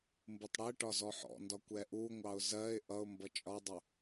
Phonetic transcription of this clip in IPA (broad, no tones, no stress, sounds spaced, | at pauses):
m b u tˤ ɽ ɛ ʈ ɒ z ɔ ħ ɔ̰ n d ɒ kʷ ɛ ʔ u ŋʷ ɑ ʊ̯ z ɜ ɪ̯ ʔ ʌ ʊ̯ m b ʌ t͡ʃʼ ɒ dˤ ʊ